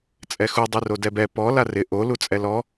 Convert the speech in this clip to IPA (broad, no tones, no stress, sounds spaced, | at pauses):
t͡sʼ ɛ x u dˤ i r o d ɛ b ɛ p ɔ l a r ɪ ʔ o l u t͡sʼ ɛ l ɔ